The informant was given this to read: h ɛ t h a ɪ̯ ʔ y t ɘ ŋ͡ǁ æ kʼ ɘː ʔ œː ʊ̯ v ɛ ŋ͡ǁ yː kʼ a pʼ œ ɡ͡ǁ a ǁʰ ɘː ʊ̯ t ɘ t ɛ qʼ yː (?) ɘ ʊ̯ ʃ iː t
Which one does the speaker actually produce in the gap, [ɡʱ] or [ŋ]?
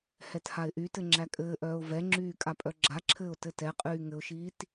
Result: ŋ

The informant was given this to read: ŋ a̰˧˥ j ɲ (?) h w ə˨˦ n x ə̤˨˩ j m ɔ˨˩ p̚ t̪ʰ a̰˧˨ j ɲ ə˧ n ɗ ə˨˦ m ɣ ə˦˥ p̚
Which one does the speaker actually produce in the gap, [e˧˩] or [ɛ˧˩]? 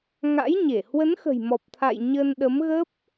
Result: e˧˩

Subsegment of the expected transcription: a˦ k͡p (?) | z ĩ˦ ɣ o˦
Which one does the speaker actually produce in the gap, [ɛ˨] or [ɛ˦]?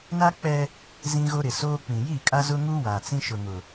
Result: ɛ˦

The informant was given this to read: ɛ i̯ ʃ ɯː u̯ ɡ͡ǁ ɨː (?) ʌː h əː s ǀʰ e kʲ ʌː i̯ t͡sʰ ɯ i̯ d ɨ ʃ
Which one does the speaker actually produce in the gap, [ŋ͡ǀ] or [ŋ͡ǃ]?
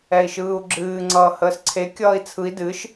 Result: ŋ͡ǀ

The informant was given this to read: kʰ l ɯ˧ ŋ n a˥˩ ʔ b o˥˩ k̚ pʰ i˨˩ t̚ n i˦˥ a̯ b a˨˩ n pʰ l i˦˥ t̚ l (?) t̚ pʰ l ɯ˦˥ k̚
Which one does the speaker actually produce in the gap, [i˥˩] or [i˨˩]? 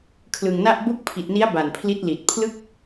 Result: i˨˩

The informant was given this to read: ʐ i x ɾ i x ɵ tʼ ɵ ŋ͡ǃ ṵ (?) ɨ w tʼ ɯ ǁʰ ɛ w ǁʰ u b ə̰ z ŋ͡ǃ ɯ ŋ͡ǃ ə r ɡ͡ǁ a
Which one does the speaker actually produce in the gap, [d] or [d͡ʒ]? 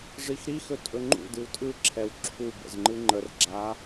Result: d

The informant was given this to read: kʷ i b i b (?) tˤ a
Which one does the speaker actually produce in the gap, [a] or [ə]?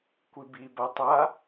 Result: a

